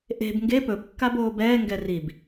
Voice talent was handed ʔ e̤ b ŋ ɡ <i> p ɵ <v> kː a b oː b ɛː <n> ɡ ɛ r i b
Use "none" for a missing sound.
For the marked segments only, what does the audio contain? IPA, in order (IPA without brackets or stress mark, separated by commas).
e, b, ŋ